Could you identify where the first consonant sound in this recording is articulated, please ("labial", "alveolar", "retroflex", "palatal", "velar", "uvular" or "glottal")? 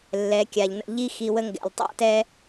alveolar